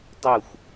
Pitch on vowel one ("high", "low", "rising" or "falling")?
falling